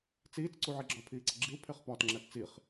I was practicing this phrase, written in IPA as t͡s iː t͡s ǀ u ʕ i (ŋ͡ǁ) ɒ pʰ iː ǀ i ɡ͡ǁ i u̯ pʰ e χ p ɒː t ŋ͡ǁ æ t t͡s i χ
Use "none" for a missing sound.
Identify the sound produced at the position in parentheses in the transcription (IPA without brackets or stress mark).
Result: ɡ͡ǁ